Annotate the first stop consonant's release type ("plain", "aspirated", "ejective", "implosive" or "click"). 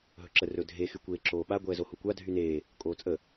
click